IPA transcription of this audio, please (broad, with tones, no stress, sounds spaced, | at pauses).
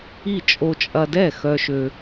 i˥˩ t͡ʃʼ o˧ t͡ʃʼ ɐ˧ d ɛ˥˩ x œ˧ ʃ ø˧